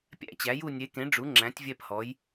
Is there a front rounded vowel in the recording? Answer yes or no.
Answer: no